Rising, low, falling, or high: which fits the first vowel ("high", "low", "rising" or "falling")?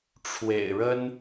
low